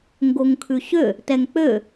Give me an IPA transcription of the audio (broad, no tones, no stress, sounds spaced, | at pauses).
ŋ ɡ o ŋ kʰ ʉ ɕ ø | t ɛ ŋ k͡p ø